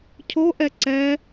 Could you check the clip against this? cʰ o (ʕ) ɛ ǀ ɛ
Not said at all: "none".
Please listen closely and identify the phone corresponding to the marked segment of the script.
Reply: ʔ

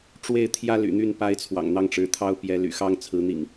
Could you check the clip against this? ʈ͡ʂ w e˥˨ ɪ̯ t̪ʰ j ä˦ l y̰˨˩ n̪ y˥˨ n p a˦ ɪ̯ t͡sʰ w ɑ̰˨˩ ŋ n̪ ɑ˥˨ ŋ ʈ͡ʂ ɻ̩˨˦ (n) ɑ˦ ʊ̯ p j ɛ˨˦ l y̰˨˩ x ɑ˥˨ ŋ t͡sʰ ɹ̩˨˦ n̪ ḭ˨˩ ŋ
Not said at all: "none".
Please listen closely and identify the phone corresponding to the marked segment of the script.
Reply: t̪ʰ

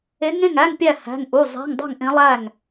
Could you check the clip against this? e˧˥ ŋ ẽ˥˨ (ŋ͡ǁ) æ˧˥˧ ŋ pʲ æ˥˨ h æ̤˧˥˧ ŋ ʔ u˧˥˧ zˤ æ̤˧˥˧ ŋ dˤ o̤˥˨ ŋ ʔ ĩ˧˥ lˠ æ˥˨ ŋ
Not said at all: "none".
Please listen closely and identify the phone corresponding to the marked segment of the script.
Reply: ŋ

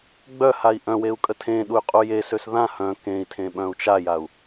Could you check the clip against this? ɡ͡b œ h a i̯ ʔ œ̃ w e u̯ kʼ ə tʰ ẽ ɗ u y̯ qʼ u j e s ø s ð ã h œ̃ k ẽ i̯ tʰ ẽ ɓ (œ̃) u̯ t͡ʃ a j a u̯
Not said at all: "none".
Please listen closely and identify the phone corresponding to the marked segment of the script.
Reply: œ̃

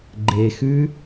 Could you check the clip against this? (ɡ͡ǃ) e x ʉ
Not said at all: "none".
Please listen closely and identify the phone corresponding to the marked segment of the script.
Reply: ɡ͡ǃ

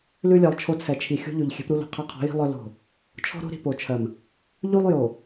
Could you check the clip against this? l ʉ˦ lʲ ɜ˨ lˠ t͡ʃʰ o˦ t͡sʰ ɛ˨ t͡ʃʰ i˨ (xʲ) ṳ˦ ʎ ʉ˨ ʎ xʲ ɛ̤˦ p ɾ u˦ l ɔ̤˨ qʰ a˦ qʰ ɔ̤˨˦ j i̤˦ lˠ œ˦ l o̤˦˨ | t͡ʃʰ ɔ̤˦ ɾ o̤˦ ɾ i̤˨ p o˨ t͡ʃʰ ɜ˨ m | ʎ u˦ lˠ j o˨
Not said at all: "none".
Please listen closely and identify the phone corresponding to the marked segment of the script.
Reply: xʲ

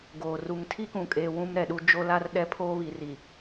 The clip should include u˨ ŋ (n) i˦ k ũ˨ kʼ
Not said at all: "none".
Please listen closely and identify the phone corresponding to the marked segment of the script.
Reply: tʰ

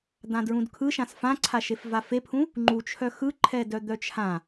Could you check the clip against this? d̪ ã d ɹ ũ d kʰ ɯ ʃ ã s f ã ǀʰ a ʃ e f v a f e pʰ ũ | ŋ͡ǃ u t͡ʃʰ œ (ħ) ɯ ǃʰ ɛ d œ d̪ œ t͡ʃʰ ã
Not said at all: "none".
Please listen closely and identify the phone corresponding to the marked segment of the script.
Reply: x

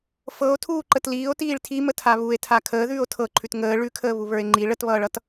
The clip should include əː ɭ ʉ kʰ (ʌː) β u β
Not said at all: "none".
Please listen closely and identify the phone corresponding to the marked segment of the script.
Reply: əː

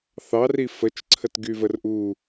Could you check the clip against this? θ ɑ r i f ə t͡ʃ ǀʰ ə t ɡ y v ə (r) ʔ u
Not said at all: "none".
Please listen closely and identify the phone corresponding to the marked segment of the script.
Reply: r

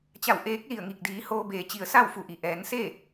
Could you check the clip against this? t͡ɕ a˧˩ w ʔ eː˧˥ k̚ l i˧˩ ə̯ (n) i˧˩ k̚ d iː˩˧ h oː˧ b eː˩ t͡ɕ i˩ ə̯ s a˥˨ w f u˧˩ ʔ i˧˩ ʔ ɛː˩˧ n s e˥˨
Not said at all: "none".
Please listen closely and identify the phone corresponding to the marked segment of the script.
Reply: ŋ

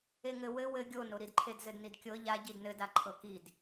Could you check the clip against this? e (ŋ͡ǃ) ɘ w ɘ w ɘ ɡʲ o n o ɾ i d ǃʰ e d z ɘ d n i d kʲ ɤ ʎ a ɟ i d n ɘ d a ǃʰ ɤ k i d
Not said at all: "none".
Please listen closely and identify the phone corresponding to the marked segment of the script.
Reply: ŋ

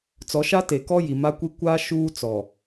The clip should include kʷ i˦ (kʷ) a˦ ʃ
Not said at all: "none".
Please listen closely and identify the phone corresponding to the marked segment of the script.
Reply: kʷ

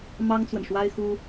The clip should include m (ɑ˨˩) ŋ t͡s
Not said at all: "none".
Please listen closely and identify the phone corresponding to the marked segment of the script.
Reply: ɑ˥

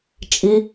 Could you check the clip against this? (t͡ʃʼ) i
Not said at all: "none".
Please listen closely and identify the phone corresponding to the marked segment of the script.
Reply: t͡ʃʼ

